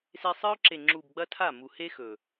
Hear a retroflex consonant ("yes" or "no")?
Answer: no